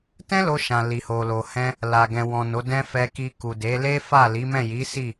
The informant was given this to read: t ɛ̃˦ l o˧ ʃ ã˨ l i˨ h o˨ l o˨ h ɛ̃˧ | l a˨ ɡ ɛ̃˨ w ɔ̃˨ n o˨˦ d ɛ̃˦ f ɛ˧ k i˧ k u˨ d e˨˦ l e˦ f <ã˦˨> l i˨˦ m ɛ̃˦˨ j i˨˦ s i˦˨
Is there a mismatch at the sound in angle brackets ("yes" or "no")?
yes